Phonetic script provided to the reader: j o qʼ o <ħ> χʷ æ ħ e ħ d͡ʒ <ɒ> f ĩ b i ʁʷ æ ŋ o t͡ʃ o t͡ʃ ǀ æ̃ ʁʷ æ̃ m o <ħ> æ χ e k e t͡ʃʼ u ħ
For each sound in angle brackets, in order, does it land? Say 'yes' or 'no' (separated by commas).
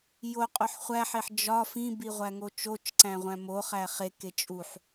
yes, yes, no